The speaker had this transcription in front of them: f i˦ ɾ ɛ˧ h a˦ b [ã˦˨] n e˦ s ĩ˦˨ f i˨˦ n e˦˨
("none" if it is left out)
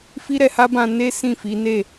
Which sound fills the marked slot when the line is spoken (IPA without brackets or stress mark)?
ã˧